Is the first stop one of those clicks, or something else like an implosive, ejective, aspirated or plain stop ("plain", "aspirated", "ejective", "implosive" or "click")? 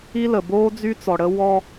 plain